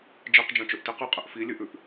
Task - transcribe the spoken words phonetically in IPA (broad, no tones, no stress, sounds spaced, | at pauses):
d͡ʒ i q d͡ʒ ɐ̃ t͡ʃ ɵ ʔ t i q ɨ qʼ ɨ ʔ f i lʲ ɨ ʔ ʉ ʔ